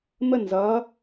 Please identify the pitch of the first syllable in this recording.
falling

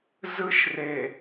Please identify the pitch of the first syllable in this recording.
high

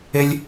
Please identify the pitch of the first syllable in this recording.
high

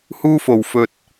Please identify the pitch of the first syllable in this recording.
high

